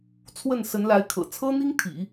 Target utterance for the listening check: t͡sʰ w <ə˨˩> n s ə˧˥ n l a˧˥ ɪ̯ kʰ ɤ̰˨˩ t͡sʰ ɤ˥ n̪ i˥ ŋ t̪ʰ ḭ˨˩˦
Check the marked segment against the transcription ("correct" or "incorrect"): incorrect